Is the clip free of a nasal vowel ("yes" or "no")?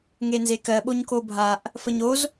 yes